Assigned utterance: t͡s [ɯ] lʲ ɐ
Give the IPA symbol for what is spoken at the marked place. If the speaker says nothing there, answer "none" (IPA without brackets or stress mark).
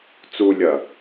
u